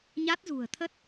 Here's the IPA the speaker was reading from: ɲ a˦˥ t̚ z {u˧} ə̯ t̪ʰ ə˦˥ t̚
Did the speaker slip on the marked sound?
yes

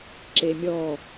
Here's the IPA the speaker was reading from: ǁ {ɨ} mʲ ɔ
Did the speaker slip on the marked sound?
yes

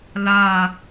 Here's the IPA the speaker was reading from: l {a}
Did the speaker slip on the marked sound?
no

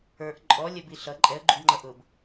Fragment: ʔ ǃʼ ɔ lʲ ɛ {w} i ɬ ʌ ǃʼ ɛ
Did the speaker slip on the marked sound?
yes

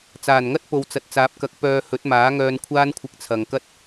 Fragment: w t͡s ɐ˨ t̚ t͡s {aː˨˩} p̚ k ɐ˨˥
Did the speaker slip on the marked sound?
yes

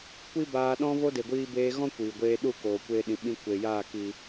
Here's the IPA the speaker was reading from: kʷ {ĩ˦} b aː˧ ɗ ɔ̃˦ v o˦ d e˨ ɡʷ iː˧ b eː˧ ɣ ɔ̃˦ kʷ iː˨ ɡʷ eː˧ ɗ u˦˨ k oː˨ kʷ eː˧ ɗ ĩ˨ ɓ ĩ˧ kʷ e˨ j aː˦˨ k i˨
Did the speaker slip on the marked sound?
yes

